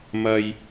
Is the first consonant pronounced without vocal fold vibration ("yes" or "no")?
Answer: no